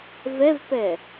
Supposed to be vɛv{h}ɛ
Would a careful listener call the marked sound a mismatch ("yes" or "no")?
yes